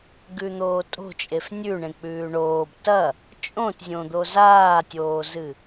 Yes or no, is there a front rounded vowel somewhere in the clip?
no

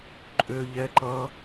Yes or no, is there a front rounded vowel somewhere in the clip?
yes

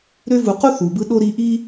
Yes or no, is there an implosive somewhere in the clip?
yes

